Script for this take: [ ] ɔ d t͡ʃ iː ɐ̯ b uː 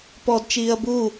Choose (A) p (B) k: A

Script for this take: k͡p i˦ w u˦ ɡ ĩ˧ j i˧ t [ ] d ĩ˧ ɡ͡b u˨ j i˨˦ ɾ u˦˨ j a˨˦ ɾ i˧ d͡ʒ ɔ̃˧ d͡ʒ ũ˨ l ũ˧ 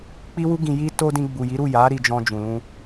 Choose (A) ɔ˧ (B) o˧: B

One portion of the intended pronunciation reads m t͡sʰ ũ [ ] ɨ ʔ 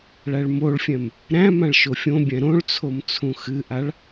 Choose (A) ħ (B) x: B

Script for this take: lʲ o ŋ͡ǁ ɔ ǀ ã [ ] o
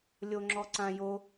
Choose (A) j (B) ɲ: A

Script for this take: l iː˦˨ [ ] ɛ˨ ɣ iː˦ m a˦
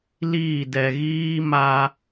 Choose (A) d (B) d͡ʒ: A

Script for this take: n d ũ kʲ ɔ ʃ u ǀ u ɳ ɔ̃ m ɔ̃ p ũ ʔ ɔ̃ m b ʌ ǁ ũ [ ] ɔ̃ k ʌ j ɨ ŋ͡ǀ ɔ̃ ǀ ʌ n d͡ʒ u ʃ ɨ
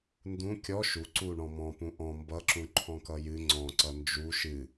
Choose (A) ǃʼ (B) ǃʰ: B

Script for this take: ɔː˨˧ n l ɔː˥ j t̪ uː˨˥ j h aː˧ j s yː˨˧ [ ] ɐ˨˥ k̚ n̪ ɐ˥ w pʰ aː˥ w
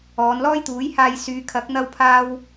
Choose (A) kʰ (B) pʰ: A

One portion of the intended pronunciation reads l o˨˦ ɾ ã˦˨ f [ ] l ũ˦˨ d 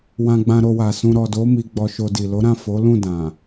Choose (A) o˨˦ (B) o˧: A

